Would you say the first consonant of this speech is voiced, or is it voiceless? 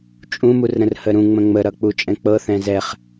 voiceless